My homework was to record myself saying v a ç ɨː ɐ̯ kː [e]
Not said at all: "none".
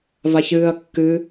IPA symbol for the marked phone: ɨ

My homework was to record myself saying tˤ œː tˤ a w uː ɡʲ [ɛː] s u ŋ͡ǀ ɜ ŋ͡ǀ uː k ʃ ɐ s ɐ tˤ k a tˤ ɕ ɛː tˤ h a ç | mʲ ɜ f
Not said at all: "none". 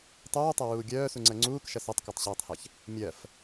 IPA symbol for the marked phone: œː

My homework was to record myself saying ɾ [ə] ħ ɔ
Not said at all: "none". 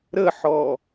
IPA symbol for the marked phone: ə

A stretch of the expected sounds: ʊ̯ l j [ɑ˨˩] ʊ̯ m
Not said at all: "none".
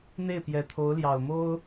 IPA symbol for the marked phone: ɑ˨˩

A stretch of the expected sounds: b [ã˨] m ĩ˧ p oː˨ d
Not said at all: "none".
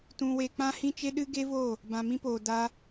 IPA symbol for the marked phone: ã˨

